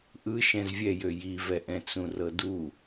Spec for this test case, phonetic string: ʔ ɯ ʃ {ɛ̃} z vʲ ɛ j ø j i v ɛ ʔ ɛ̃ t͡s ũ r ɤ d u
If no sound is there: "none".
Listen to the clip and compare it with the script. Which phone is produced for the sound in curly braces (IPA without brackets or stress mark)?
ɛ̃